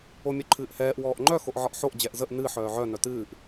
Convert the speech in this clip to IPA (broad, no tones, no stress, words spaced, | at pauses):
omʲœǃʰɨːʔhɛːʔ wɔːʔŋ͡ǃœ xoʔʕɒʔħoʔ d͡ʑɛʔzəʔ nɨ ħœːʕœ nœtɨːʔ